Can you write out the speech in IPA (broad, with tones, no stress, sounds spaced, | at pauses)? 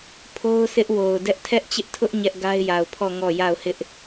pʰ o˦ ʊ̯ sʰ ɪ˦ ʔ w o˨ ʊ̯ d ɛ˦ ʔ tʰ ɛ˦ ʔ t͡ɕ ɪ˦ ʔ tʰ ʊ˦ ʔ ɲ ɛ˦ ʔ ɡ a˦ ɪ̯ j a˨ ʊ̯ pʰ ɔ˦˨ ŋ ɔ˦˨ j a˦˨ ʊ̯ h ɪ˦ ʔ